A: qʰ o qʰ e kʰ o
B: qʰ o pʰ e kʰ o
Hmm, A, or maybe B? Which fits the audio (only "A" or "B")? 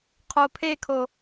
B